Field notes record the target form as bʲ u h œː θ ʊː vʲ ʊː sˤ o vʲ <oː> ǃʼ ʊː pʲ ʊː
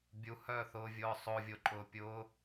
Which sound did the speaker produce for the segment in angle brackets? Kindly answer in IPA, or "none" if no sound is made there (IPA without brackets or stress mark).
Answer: o